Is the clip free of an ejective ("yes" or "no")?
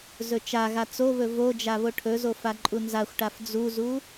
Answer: no